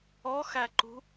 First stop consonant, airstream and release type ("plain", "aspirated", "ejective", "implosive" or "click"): click